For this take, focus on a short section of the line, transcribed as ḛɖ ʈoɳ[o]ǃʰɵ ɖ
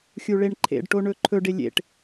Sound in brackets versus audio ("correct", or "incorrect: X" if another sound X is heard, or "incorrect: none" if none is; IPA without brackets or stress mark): incorrect: ɵ